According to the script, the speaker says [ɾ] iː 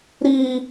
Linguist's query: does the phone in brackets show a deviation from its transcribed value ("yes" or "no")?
no